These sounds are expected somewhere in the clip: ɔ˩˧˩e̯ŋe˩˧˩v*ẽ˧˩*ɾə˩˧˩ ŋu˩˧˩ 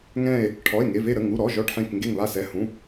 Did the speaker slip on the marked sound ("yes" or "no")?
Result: yes